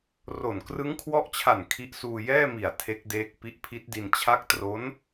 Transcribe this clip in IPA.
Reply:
r o˨˩ n k r ɯ˦˥ ŋ kʰ w ɔ˦˥ ʔ t͡ɕʰ a˨˩ n kʰ i˦˥ ʔ s uː˧ j ɛː˥˩ m i˨˩ a̯ tʰ e˦˥ k̚ d eː˦˥ k̚ p i˦˥ ʔ pʰ i˦˥ t̚ d i˧ n t͡ɕʰ a˦˥ k̚ t r o˦˥ n

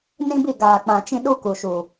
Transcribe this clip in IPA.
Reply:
n ĩ˦ b i˦˨ ɡ aː˨ k͡p ã˨ t͡ʃ ĩ˦ ɗ u˦ k u˨ ʃ uː˨

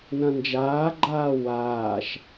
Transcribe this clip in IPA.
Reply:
n ɐ̃ n d͡ʒ aː ɡ͡ǃ aː w aː ʃ

